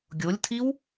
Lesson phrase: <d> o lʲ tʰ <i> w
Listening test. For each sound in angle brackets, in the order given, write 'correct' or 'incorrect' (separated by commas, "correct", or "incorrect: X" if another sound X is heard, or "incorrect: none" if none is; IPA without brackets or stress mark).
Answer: incorrect: ɡʲ, correct